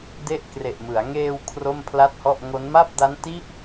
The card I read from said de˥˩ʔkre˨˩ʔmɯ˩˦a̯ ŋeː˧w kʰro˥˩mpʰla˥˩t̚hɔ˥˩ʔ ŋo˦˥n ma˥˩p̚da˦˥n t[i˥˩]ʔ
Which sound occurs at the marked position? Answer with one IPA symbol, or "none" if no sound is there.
i˦˥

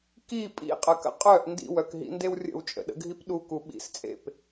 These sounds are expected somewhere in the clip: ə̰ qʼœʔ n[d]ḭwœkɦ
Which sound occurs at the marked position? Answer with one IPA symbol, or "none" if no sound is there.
d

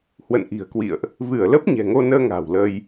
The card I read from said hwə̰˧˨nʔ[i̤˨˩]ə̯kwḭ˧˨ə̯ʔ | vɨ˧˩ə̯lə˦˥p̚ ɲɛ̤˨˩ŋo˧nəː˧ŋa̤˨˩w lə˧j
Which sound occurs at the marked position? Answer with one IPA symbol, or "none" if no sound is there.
i̤˨˩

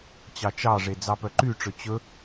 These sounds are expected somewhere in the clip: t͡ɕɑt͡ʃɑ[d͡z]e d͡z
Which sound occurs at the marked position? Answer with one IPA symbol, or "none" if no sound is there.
ʐ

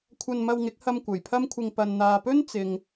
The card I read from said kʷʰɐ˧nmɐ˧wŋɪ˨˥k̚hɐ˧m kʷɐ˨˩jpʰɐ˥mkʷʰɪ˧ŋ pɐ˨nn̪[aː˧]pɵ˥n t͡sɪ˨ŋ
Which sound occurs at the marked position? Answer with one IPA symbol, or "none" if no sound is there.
aː˨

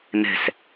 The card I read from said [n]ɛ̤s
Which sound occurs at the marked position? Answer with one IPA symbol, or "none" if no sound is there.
n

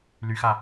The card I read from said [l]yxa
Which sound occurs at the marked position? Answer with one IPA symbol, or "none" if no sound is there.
l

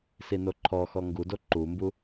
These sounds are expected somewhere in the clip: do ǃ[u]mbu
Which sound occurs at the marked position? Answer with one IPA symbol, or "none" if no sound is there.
u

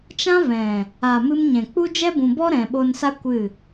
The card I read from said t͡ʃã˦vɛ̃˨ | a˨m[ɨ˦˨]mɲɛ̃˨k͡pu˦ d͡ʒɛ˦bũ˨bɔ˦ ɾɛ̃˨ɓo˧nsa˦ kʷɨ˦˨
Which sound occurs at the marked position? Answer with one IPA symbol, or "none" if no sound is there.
ɨ˧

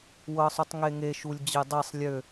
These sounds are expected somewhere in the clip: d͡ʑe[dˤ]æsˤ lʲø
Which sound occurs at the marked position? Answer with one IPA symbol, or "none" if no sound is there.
dˤ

